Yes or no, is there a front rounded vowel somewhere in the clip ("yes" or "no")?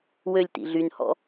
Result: yes